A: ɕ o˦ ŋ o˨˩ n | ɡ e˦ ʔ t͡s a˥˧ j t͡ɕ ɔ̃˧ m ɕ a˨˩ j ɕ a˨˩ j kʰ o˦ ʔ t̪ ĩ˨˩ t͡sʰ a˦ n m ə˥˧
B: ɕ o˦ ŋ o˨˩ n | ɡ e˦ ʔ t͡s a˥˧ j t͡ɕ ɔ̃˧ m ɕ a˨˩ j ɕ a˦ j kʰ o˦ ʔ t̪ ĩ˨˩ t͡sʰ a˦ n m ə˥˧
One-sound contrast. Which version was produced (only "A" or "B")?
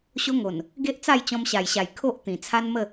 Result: A